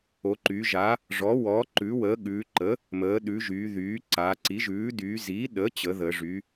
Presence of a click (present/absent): present